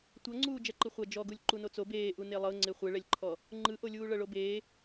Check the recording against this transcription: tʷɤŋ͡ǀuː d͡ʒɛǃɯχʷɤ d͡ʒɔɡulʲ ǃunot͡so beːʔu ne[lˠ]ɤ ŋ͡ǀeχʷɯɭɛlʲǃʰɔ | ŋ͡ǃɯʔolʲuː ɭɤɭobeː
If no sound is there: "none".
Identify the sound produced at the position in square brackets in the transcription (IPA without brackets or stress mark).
lˠ